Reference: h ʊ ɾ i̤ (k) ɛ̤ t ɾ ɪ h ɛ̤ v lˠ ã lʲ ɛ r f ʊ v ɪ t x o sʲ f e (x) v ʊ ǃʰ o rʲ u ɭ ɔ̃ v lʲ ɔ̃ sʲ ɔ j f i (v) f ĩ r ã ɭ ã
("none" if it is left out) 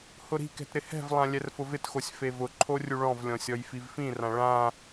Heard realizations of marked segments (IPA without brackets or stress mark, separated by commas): k, none, v